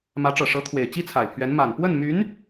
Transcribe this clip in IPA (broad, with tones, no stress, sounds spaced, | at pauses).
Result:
m ä˧˥ ʈ͡ʂ ɤ˨˩ ʂ ɤ˧˥ t̪ʰ w e˨˩ ɪ̯ t͡ɕ i˥ t͡sʰ a˨˩ ɪ̯ pʰ ɥ ɛ˧˥ n m a˨˩ n p w ə˥˩ n m y˧˥ n